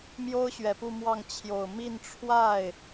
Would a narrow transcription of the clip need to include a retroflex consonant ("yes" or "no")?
yes